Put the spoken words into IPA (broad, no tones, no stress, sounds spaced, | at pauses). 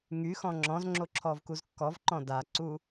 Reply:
ŋ y x ɔ̃ ŋ͡ǁ ɔ̃ z ŋ͡ǁ o ǁʰ ɔ v k u z kː ɔ v ǃ ɔ̃ d a ǀ u